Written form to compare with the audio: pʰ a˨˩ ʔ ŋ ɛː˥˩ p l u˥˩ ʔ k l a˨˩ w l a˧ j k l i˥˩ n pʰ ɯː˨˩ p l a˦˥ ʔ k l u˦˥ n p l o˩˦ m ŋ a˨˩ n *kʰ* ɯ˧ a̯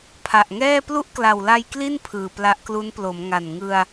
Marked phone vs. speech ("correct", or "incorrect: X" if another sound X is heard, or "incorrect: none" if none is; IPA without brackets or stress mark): incorrect: ŋ